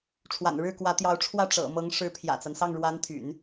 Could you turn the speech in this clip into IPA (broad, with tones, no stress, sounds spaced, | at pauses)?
ʈ͡ʂʰ w a̰˨˩ n ɻ ɻ̩˥˩ k w ä˧˥ t̪ j ɑ˧˥ ʊ̯ ʈ͡ʂʰ w ä˥˩ ʈ͡ʂ ɤ̰˨˩ m ɤ˧˥ ŋ ʂ ɻ̩˧˥ pʰ j ä̰˨˩ t͡s a˦ n s ɑ˥˩ ŋ ɻ w a˧˥ n t̪ʰ y̰˨˩˦ n